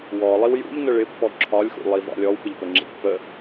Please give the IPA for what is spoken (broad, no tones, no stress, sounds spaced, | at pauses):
w ɔ lˠ i w j ṵ ʎ n ə ɭ ɪ pː ɔ ǁʰ ɒ lʲ x ṵ lˠ i v ɑ̰ lʲ ɔ w p ɪ ʎ p ə ŋ͡ǁ ḭ pː ə